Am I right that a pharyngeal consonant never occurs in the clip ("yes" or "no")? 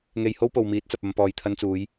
yes